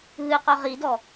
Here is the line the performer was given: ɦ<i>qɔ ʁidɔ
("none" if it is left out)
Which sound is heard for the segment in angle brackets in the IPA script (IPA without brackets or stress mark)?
ɨ